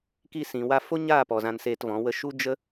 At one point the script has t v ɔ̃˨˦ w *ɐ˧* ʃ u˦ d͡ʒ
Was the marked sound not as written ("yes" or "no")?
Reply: yes